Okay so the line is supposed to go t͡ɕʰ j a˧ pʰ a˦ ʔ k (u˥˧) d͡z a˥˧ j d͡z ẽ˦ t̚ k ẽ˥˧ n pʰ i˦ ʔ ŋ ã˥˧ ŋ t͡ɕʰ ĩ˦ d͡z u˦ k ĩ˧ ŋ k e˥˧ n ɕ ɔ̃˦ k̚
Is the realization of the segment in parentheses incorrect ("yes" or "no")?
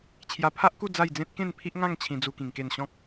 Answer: no